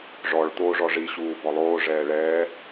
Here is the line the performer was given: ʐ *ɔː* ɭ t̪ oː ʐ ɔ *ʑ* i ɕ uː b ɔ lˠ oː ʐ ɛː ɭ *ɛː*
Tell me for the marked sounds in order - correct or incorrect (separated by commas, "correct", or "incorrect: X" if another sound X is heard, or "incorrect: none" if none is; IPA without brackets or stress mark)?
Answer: incorrect: ɔ, incorrect: ʐ, correct